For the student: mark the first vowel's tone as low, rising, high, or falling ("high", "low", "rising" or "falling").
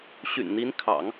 low